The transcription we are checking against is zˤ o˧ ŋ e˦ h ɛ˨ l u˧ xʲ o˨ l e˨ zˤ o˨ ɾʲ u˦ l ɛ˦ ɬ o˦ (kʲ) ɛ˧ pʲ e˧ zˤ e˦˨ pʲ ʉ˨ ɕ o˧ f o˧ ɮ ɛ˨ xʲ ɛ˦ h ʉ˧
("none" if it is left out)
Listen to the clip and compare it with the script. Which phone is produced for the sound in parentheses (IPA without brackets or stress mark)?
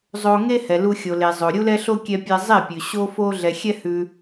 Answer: kʲ